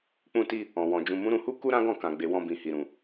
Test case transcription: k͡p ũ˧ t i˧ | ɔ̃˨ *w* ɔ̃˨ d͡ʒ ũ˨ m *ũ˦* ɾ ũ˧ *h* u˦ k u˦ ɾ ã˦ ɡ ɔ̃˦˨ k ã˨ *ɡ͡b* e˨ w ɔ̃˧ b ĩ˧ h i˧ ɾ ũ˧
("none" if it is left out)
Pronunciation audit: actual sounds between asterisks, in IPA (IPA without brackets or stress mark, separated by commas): w, ũ˨˦, h, ɡ͡b